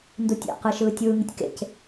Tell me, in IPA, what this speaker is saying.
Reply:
ndutʲa̰qɯ ʃɯːtʲɯːŋitʲ kḛc

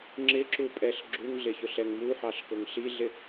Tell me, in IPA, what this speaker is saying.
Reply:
ŋ͡ǁɪǁupʼɛɬ ɡ͡ǁuŋɮɪçʊɬɛŋ muħɑɬkʊŋ ɬiɮɪ

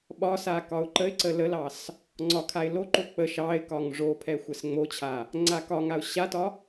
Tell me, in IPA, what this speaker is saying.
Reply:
ɓɒsa kɒʊ̯ǃəɪ̯ǀə ləlɑs | ŋ͡ǀɒkʰaɪ̯ loǃo k͡pə ʃɑɪ̯kɒŋ ʐopʰɛ xʷɛsŋ͡mot͡ɕʰa | ŋ͡ǀakɒŋaʊ̯ ɕatɒ

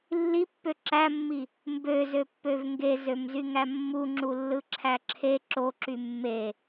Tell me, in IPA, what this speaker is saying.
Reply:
lːipːø ǁæmːi | mbøzøpːøv ŋɡezømzyŋæ mːuŋ͡ǁulːɯǁʰæ ǁʰe ǁoǁy mːe

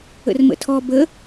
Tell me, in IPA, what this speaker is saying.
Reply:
ə̰rmə̰tʰɔ bə

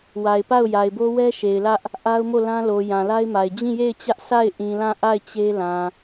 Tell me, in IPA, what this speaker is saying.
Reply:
wa˨ɪ̯pa˦˨ʊ̯ ja˨ɪ̯bo˦wɛ˦ ʃe˨ɪ̯lä˦ʔ | ʔa˦ʊ̯mo˦˨lã˦lo˨ jã˨la˦ɪ̯ma˨ɪ̯ d͡ʑĩ˦˨je˦˨ɪ̯t͡ɕä˦ʔ sa˦˨ɪ̯ ʔĩ˨lã˦˨ʔa˦˨ɪ̯ t͡ɕe˦lã˨

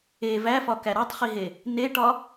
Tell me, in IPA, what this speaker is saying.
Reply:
e væfɒkæ ɾɒtˤχiɦe | neʈɒ

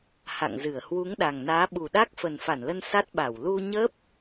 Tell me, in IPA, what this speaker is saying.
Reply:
ha̰˧˨ŋzɨ˧˩ə̯ hwu˨˦ŋɗa˨˩ŋnaː˨˦ ɓu˨˩ɗa˦˥k̚ fə˨˩nfa˧˩nlə˧n sa˦˥t̚ɓa˧˩w lu˧ ɲə˦˥p̚

